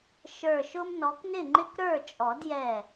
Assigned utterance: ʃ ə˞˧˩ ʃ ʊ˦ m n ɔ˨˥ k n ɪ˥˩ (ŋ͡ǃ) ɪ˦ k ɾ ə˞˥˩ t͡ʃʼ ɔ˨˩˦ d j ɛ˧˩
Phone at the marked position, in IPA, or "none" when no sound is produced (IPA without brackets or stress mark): ŋ͡ǃ